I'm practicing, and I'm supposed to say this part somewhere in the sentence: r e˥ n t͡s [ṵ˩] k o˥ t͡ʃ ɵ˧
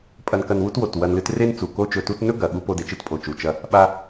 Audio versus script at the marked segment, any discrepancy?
yes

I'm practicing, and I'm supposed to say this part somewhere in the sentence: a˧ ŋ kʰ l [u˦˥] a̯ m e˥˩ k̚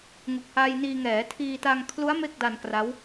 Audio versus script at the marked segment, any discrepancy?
no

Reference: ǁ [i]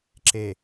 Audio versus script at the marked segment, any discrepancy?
yes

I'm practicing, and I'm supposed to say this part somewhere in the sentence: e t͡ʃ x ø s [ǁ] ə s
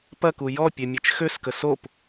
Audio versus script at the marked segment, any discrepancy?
yes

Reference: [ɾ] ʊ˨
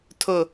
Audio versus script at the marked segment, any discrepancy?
yes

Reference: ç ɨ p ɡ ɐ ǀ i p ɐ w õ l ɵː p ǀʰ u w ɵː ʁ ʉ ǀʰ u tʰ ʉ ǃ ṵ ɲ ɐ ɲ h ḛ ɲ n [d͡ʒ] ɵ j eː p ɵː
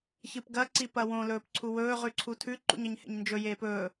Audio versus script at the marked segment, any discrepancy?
no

